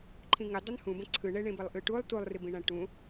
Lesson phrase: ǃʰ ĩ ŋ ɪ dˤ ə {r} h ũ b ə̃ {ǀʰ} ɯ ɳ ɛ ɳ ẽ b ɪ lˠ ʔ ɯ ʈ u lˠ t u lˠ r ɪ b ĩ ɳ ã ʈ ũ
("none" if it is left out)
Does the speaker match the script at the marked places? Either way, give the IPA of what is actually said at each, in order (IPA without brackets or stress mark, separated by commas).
n, ǀʰ